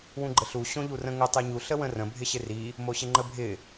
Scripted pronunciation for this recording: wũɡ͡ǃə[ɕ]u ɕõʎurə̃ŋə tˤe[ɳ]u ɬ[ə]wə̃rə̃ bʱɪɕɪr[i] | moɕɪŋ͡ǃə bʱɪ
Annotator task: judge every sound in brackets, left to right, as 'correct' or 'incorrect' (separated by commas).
incorrect, incorrect, correct, correct